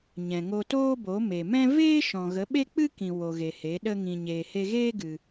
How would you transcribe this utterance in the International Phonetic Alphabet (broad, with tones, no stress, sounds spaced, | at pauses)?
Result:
ɲ ɛ̃˨ ŋ o˧ t oː˦ b o˨˦ m e˨ m ɛ̃˦ v eː˦ ʃ ɔ̃˨ ɣ ə˨˦ ɓ e˦ k͡p ɨ˦ k ĩ˨ w o˨ ɣ e˨ h e˨˦ ɗ ə˦ ŋ ĩ˧ ɲ eː˨ h e˧ ɣ eː˦ ɡ ɨ˧